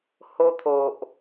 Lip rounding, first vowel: rounded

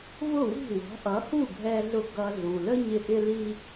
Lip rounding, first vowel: rounded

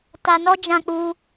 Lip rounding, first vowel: unrounded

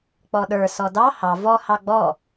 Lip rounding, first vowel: rounded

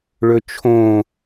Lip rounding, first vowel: rounded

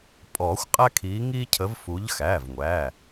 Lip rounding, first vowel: rounded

